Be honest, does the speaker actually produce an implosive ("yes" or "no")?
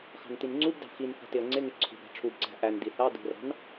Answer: no